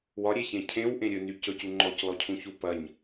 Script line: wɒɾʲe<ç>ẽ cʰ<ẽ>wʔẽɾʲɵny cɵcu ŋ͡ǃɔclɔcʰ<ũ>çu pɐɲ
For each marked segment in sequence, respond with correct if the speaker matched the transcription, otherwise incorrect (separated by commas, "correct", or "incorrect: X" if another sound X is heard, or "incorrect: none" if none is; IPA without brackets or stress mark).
correct, correct, correct